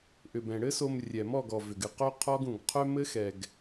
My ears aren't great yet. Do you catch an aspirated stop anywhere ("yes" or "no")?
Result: yes